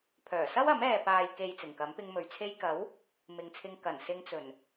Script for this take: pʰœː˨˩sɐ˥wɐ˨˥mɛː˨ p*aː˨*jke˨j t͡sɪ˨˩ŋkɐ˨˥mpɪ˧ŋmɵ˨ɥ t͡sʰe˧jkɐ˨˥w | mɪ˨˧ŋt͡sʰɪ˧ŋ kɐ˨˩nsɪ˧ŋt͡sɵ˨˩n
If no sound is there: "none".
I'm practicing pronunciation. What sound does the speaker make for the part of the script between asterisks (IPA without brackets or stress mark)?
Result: aː˨